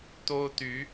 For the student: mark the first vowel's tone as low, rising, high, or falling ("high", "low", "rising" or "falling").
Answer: high